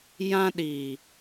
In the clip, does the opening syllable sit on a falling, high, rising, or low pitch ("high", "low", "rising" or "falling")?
high